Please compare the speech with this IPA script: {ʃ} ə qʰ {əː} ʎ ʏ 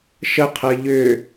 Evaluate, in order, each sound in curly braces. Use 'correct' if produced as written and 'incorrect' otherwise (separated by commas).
correct, correct